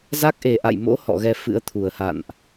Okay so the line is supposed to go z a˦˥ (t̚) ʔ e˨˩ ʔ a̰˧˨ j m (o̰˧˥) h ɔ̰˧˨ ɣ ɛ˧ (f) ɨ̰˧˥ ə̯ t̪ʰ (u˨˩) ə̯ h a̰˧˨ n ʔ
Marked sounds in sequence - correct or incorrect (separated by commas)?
incorrect, correct, correct, correct